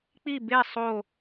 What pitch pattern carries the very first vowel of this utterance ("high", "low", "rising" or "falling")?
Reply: falling